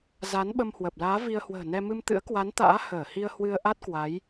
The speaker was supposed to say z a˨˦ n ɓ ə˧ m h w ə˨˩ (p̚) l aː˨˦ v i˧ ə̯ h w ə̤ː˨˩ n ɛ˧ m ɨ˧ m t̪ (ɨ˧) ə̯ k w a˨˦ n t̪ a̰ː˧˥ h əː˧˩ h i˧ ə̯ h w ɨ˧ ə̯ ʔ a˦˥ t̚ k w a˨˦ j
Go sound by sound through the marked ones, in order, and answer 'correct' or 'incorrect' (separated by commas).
correct, incorrect